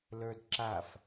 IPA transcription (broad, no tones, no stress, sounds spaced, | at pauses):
l ə˞ d ǁ a f